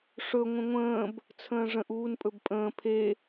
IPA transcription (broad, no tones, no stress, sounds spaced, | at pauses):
ʂ ɵ ŋʷ ə̃ ŋʷ ə̃ː b | t͡sʰ ə̃ː ʐ ə̃ ʔ uː n pʼ ɵ b pʼ ə̃ː pʰ e